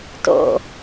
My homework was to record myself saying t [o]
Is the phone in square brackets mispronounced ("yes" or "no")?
yes